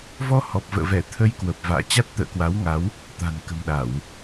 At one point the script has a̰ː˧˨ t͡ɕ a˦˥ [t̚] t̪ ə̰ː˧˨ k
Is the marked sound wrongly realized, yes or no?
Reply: no